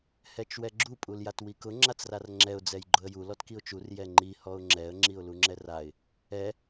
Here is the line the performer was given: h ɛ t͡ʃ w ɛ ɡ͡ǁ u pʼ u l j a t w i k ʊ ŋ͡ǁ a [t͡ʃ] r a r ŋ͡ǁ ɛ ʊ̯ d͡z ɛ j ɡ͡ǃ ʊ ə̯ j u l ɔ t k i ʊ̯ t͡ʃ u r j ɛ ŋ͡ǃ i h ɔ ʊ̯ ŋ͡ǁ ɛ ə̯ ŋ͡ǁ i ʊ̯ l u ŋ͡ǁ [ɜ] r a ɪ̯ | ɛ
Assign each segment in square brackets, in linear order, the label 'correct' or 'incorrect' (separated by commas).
incorrect, incorrect